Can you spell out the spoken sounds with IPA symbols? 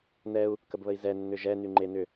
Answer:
n ɛ u̯ | k ə b β ə i̯ z ɛ nː ʏ ʒ ɛ n y ŋ͡ǃ e n ʏ

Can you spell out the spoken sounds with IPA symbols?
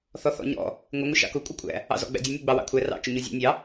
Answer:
θ ɔ θ ɔ̰ ɲ ɔ̰ | ŋʷ ɪ ŋʷ ɪ ʃ ɑ̰ k ʊ kʷʼ ʌ kʷʼ æ̰ | ɑ̰ z ɔ̰ ɡ͡b æ̰ dʲ ʌ nʲ u ɡ͡b ɑ w ɑ̰ kʷʰ æ r ɑ̰ t͡ʃ ʊ ɲ u zʲ ɔ̰ nʲ ɑ

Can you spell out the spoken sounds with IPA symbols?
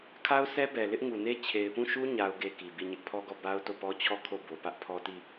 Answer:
kʰ a˦ ʊ̯ s ɛ˦ b ɛ˨ l ɪ˦ ʔ ŋ u˨ n e˦ t͡ɕʰ e˨ ɪ̯ p ũ˦˨ ʃ u˦ ɲ a˦ ʊ̯ ɡ e˦ k i˨ b i˦˨ ɲ ɪ˦ ʔ pʰ ɔ˦ ɡ ɔ˦˨ b a˦ ʊ̯ t o˦˨ p ɔ˦ t͡ɕʰ ɔ˦˨ kʰ o˦˨ b o˨ p ä˦ ʔ pʰ ɔ˦ t i˦˨

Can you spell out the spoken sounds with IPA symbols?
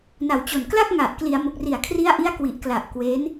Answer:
n a˨˩ w t͡ɕ o˨˩ n k l a˥˩ k̚ ŋ a˨˩ ʔ k l i˩˦ a̯ m o˨˩ k̚ r i˨˩ a̯ kʰ r i˦˥ a̯ ʔ i˦˥ a̯ k w i˨˩ ʔ k l a˨˩ ʔ k w e˦˥ n

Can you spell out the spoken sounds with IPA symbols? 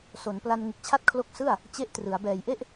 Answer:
s o˩˦ n p l a˧ n ŋ ɯ˨˩ k̚ t͡ɕʰ a˦˥ t̚ kʰ l o˦˥ k̚ s ɯ˥˩ a̯ | t͡ɕ e˦˥ ʔ t r ɯ˩˦ a̯ b ɛː˨˩ j ʔ e˥˩ ʔ

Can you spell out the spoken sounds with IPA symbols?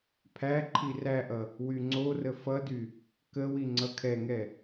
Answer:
pʰ æ ǃʰ i r æ ʔ ʌ | w y ŋ͡ǀ o r ə f ʌ d y | k ə w i ŋ͡ǀ ʌ kʰ ɛ ŋ ɛ

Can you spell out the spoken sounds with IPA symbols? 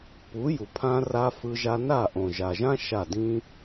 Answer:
p u˨˦ j u˨ pʰ ã˧ r a˧ f ɯ˧ ʒ a˧ n a˦˨ ʔ õ˨ ʒ a˨ ʒ ã˦ ʃ a˦˨ d ĩ˦

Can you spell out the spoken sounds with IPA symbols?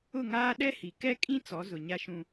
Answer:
ʊ˦˨ ŋ aː˦ ɗ ɛ˦ h i˨ k ɛ˦ kʼ ĩ˦ t͡s ɔ˨˦ z ʊ˨ ɲ a˦ ʃ ũ˦

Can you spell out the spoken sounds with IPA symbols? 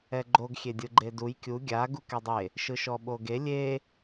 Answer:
ɛ ɡ͡ǃ o ɡ xʲ e dʲ ɯ ɡ͡ǃ e d u j kʲ u ɡʲ a ɡ u k ɛ dˤ e | ʃ ɯ ʃ ɔ ɓ o ɡ e lʲ e

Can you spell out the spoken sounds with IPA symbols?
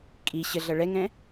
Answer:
kʼ i ɕ ə ɮ ʌ ɭ ɛ ŋ ɛ̃

